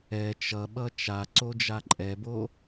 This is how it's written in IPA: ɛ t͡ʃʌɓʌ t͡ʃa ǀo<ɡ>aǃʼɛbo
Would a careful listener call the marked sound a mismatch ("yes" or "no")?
yes